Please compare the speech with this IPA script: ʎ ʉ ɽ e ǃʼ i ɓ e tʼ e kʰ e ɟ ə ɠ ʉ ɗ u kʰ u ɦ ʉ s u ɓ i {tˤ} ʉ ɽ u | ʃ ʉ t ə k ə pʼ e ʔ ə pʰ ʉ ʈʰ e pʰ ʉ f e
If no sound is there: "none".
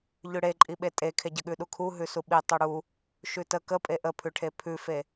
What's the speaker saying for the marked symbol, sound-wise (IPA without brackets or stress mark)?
tˤ